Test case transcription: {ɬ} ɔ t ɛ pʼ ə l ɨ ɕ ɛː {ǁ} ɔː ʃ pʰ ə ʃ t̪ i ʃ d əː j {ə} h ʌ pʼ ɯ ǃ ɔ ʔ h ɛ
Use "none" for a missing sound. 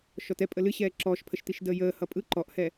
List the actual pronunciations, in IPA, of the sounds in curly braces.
ʃ, ǁ, əː

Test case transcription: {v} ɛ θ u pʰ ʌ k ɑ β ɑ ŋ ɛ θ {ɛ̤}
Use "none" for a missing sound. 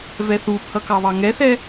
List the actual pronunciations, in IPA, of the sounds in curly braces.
v, ɛ

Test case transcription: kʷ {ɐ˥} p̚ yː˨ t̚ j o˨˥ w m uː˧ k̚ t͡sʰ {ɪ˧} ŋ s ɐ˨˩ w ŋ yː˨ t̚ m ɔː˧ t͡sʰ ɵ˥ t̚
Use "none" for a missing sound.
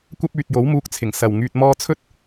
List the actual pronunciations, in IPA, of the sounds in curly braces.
ɐ˥, ɪ˨˩

